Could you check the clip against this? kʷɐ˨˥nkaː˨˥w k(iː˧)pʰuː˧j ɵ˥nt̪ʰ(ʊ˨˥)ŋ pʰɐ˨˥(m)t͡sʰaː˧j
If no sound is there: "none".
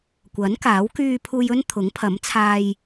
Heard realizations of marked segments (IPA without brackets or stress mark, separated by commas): yː˧, ʊ˨˥, m